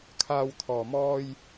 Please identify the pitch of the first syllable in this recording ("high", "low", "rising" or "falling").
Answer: low